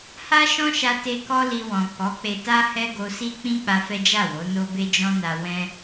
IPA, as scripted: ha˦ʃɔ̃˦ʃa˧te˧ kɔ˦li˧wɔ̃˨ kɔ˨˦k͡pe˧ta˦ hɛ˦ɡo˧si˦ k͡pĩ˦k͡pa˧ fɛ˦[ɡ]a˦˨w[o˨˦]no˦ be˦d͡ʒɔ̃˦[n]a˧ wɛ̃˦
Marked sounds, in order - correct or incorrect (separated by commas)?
incorrect, correct, correct